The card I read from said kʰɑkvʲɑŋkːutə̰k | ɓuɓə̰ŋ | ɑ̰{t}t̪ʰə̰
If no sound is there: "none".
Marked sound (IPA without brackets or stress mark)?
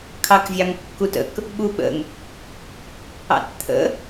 t